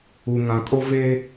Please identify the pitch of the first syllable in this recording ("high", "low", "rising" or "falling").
low